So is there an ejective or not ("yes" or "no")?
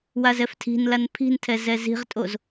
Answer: yes